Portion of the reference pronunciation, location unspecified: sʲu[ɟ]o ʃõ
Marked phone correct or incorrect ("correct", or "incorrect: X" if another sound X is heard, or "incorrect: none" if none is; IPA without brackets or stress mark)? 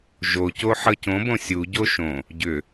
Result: correct